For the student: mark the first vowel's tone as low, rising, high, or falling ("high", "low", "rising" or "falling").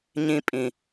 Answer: high